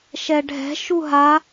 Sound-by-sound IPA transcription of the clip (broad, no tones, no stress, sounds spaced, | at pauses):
ʃ ɛ ɖʱ ɛ̤ ʃ u ɦ a